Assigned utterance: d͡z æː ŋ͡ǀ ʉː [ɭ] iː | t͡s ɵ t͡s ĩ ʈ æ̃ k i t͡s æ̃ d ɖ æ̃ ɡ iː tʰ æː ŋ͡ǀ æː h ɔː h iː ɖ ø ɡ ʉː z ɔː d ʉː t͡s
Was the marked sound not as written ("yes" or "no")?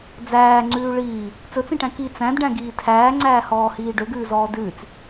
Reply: no